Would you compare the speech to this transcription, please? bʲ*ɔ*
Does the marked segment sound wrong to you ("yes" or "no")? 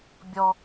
no